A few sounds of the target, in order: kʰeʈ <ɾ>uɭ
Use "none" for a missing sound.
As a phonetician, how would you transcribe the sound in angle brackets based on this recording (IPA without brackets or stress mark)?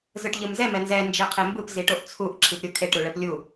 ɾ